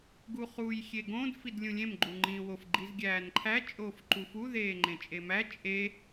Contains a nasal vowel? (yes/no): yes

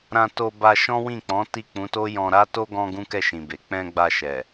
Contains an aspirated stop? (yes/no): no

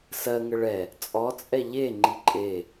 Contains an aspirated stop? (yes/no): no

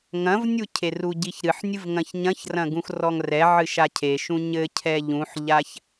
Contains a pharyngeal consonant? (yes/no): yes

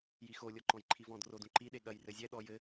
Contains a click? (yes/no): yes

